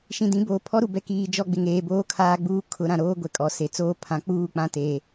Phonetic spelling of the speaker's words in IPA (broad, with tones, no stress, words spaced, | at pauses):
ʃĩ˨dĩ˨˦boː˨ pʰɔ˦ɾu˨ bɛ˨kiː˨ d͡ʒɔ˦ ɡ͡bɪ˨ŋeː˨boː˦ kʰaː˦ɡ͡buː˦kʰʊ˨˦ɾã˨ ɾoː˦ɡʷɛ˨ kʼɔ˨se˨t͡soː˦ pʰã˨˦ k͡puː˦˨k͡pã˦teː˨